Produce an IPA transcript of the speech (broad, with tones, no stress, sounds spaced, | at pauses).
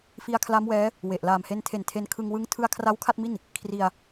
f i˧ a̯ kʰ l a˦˥ m w ɛː˦˥ | w e˨˩ ʔ l aː˨˩ m h e˧ n tʰ e˨˩ n tʰ e˧ n kʰ ɯ˧ ŋ w ɯ˦˥ ŋ tʰ ɯ˧ a̯ kʰ r a˦˥ w kʰ a˥˩ t̚ m i˥˩ n | kʰ r i˧ a̯